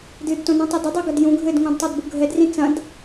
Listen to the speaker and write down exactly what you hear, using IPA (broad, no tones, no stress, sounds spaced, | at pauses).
d ɨ d t õ n ũ tˤ ɨ d ɨ dˤ i ɡ ɐ d j ũ ɡʱ ɘ d ŋ õ d tˤ a d b u ɡʱ ɛ d r ĩ t͡s ɐ̃ d